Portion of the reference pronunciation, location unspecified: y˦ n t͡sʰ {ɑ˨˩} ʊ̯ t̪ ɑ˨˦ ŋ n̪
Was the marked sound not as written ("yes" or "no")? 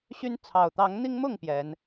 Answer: no